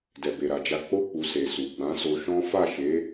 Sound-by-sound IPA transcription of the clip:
dɛ˨be˨ɾa˨d͡ʒa˧ k͡po˧ k͡pu˨ se˨su˨ ɡ͡bã˨˦so˧ʃɔ̃˦ fa˦˨ʃe˨˦

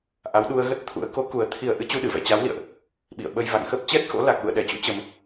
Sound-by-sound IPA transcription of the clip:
ʔa˨˦wɗu˧ə̯ɣə˦˥t̚t̪ʰṵ˧˥ə̯ ko˨˦ku˨˩ə̯ t̪ʰi˨˩ə̯ ʔɨ˧t͡ɕu˧ɗɨ˧˩vɛ̰˧˨ t͡ɕa˨˦wlḭ˧˨ə̯ʔ | ɓḭ˧˨ə̯ɓə˧j va̰˧˨ŋxə˦˥p̚ t͡ɕɛ˦˥t̚xo̰˧˥ la˨˩k̚lṵ˧˨ə̯ɗɛ˧˩t͡ɕṵ˧˥ t͡ɕə˧m

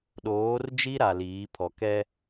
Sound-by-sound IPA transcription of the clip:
ɗoː˨˦rd͡ʒi˦ɾa˨ liː˨˦pʰɔ˨kɛ˦

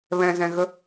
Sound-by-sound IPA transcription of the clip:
βɛ̃zɛ̃ɣə

